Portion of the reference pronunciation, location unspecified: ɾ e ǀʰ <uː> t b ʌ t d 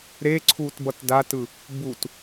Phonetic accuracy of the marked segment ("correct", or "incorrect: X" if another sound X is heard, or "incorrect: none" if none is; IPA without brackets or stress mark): correct